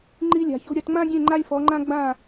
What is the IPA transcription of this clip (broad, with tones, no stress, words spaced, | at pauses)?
ŋ͡ǃi˧lʲa̤˩ço̤˧ ɾʲɐ˩˥tŋ͡mã˥ɡʲẽ˥˩ ŋ͡ǃa˥lʲfɔ˩˥ŋ͡ǃã˥ ɡ͡bã˥˩